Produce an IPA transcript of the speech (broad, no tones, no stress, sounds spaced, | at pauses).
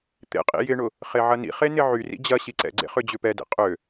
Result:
t̪ ḛ qʼ ḭ j ɪ ɳ ʊ | χ e ʕ ɐ n ḭ χ e n ɪ ʕ y r ḭ d͡ʑ ɐ ɕ i ǀ ɛ̰ ɡ͡ǀ ḛ χ ʏ d͡ʑ ʏ p ɛ d ḛ qʼ ø